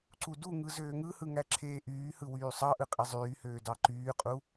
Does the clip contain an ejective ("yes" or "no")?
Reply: yes